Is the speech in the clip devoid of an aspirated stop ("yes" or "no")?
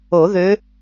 yes